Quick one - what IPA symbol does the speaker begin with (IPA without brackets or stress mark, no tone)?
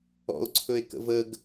ɔ̰